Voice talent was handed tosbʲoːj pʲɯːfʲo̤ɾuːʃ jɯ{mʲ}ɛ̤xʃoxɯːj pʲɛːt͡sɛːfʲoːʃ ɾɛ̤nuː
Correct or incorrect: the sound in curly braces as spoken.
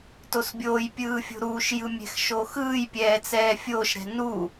correct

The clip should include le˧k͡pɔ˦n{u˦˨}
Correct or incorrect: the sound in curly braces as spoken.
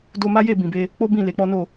incorrect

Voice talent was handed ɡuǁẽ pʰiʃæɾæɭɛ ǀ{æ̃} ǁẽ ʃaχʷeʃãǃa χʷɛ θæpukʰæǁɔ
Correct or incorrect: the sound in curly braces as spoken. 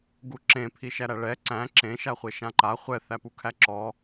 correct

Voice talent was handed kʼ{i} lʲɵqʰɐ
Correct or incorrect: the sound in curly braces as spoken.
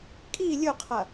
correct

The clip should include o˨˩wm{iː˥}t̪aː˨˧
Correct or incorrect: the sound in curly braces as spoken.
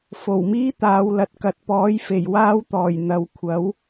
correct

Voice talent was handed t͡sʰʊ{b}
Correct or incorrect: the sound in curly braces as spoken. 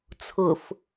incorrect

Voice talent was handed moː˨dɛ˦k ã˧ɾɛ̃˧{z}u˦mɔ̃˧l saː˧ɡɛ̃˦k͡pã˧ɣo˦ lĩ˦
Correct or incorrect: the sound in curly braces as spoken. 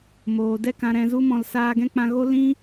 correct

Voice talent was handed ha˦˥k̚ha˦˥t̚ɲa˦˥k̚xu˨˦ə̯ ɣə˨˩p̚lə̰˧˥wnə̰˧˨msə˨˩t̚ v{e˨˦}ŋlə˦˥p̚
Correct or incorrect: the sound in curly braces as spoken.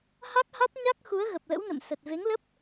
correct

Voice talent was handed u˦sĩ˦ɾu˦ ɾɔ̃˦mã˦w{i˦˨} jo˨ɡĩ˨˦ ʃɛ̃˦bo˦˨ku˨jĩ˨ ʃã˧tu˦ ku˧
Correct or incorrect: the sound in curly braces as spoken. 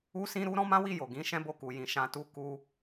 correct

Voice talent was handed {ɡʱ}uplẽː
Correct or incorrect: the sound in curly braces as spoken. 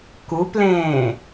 incorrect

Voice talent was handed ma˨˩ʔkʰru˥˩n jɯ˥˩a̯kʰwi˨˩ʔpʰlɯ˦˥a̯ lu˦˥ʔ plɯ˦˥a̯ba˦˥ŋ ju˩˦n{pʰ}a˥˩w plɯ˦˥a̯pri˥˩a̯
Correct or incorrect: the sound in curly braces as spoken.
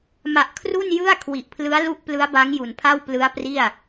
correct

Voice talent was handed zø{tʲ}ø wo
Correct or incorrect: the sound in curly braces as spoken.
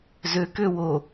incorrect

